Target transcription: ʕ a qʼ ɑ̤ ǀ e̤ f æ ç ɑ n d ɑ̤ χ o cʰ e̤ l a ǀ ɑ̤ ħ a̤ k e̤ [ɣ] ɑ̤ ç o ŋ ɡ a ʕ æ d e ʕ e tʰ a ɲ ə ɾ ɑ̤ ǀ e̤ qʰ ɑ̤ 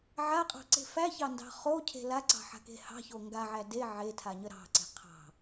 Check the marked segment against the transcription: incorrect: h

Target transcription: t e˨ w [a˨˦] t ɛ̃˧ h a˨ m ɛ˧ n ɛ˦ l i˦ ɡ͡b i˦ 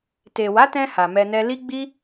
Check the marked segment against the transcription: correct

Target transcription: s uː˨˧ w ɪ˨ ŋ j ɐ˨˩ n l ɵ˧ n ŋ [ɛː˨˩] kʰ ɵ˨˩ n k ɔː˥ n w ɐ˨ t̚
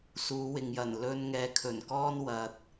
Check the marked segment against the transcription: incorrect: ɛː˨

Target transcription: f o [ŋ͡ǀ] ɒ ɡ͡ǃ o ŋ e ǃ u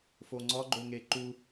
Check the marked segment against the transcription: correct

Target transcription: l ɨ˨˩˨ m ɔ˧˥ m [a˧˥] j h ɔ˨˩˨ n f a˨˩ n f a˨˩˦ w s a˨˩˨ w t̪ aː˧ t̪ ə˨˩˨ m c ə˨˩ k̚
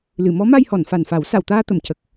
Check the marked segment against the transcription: incorrect: a˧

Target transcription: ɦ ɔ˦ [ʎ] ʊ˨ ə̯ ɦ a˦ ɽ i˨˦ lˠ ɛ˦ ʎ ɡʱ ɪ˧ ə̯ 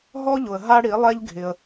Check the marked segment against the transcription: correct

